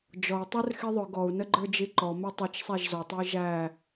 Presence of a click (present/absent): present